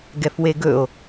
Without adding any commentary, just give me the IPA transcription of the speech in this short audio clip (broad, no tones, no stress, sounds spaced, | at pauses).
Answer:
ɡ ɛ f w e ɡ ɵ o̯